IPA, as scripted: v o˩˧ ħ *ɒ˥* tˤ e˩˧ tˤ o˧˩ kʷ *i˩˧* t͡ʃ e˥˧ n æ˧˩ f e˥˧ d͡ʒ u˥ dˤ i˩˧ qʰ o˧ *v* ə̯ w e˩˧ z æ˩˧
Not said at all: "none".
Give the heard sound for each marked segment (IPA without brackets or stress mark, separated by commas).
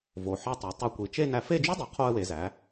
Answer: ɒ˧, i˩˧, none